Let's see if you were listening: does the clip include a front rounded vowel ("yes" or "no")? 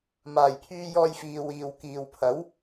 yes